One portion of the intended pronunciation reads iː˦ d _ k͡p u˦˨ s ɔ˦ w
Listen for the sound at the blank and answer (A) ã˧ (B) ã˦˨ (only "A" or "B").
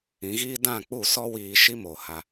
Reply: B